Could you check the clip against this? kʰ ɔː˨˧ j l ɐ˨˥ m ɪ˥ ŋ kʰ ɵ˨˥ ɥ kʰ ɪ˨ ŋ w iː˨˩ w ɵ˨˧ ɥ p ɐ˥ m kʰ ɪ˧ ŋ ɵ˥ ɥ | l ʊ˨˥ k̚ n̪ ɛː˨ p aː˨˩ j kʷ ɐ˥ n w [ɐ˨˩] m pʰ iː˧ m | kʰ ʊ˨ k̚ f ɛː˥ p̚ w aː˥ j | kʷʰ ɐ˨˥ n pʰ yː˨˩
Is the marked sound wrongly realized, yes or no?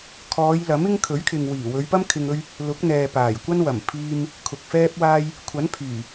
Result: no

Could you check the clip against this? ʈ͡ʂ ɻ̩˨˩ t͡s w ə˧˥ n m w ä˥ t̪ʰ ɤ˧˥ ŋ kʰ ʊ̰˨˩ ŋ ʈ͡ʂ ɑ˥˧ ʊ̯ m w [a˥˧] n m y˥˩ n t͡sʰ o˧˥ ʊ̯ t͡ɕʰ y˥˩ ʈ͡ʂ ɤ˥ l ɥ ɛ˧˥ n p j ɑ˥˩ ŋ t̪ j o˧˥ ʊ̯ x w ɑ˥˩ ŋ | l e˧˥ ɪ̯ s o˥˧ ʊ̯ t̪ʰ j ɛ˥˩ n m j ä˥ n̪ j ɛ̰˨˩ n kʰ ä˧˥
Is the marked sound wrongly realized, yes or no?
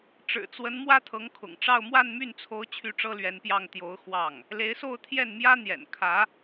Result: no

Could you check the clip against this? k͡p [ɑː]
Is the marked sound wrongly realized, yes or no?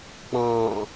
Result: yes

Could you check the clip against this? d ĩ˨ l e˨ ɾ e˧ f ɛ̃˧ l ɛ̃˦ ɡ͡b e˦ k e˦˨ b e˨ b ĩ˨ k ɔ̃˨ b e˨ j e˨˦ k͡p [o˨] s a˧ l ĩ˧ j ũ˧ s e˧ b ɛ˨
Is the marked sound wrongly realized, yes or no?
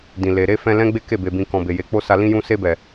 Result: yes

